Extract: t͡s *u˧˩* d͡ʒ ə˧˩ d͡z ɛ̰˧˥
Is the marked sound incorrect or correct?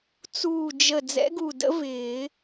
incorrect